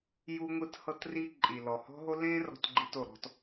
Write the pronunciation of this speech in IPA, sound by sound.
j u˦ ŋʷ ɯ˦ t h ɤ˦ t r i˦ ǃʼ i˨ l ɔ˨ h ɔ̤˦ ɦ o˦ l ẽ˦ r ɔ̤˦ t ɡ͡ǃ i˦ t o˨ ɾ ɔ̤˦ t

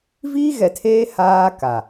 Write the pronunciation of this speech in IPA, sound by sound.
v iː˦ ɣ ɛ˨ tʰ eː˦ h aː˦ k a˨

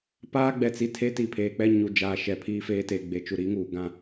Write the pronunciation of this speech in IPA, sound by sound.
p aː˦ ɡ͡b ɛ˨ t͡s i˨ tʰ e˦ t i˨ pʰ eː˨ k͡p ɛ˦ ɲ u˨ d͡ʒ aː˨ ʃ ɛ˨ pʰ iː˦ f eː˦ t eː˨ ɡ͡b e˨ t͡ʃ u˨ ɾ i˨˦ ŋ uː˨ ɡ ã˦

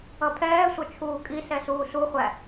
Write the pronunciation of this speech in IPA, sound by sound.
ʌ pʰ ɛː sʷ ʌ t͡ʃʰ uː kʼ i s ɛ s uː s u χʷ æ

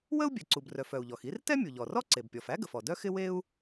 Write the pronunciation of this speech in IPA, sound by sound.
w ə˥ u̯ bʲ ɛ˩ ǀ u˩ b r œ˩ f œ˩ u̯ ʎ ɔ˩ x i˥ r t ɛ˥ mʲ u˩ ʎ ɔ˩ r ɔ˥ ǀ e˩ b pʲ ɔ˩ f æ˥ ɡ ə˩ f ɔ˩ d œ˥ x ɪ˥ w e˥ u̯

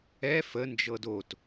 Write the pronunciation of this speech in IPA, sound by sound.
ɛ f ə n d͡ʒ ɤ d o t

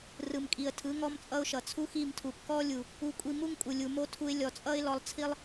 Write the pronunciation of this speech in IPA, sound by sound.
r ɯ˨ m kʼ i˨ ə̯ tʰ ɯ˨˦ ŋ ɔ˦ m t͡sʼ ʌ˦ ʊ̯ ʃ ʌ˨ t͡sʰ u˦ x i˦˨ m tʰ u˨ p k ɔ˦ lʲ u˨ | u˧ kʷʼ i˧ m u˦ ŋ kʼ u˨ lʲ u˨ m o˦ tʰ u˧ ɪ̯ lʲ ɔ˨ t͡sʼ ʌ˦ ɪ̯ l ɔ˧ lˠ t͡sʰ i˦ lˠ

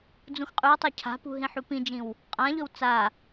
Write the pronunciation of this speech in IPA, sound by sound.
d͡z ũ x qʼ ʉ w tˤ a cʰ a̤ p ṳ ɦ ĩ ħ u p ĩ d͡ʒ ĩ w | qʼ ã ʎ ɵ w t͡s a

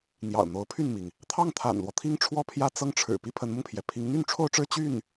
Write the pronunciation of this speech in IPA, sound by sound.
n̪ j ɑ̰˨˩ ʊ̯ n̪ o˧˥ ʊ̯ pʰ y˥˩ n m i˩ ŋ | t̪ʰ ɑ˥˩ ŋ t̪ʰ a̰˨˩ n l w ɔ˦ t̪ʰ i˥ ŋ ʈ͡ʂʰ w ɔ˥˧ pʰ j ä˥˧ t͡s ɤ˥˩ ŋ ʈ͡ʂʰ ɻ̩˨˩ p i˥ pʰ ə˧˥ n m ʊ˧ ŋ pʰ j ɛ˩ pʰ i˧˥ ŋ n̪ y˥˧ n ʈ͡ʂʰ o˥˧ ʊ̯ ʈ͡ʂ ɻ̩˥˧ t͡ɕ y˥˩ n

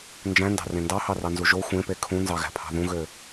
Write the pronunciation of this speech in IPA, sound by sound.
n d͡ʒ æ̃ n d ɑ̤ r ẽ n d ɑ h ɑ r ɑ n z u ʒ o xʷ ẽ p e kʰ ũ n z ɑ ɣ æ̤ pʰ ɑ̤ ð ũ ɣ ø

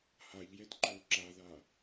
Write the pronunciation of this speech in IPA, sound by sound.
h a ʎ j ɛ t ǃ o ǁ a ð a

